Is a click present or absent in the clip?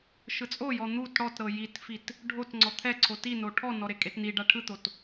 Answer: present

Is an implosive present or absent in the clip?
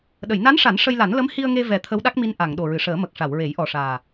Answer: present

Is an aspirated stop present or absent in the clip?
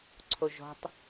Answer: present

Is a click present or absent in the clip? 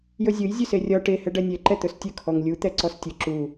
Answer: present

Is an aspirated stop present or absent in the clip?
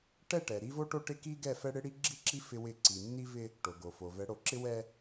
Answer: absent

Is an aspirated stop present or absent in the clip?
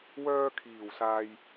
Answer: present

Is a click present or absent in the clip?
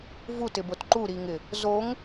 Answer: present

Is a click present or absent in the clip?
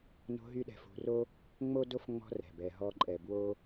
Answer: present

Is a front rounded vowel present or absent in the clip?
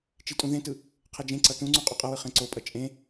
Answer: absent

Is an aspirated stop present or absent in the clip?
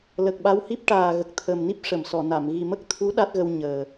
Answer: present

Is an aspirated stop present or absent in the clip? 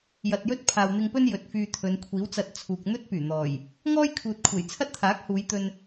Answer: present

